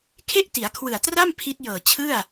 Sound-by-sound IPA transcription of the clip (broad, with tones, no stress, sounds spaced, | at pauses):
kʰ e˥˩ ʔ t i˩˦ a̯ kʰ w ɯ˨˩ a̯ t r a˥˩ m pʰ i˦˥ t̚ j ɤː˨˩ t͡ɕʰ ɯ˥˩ a̯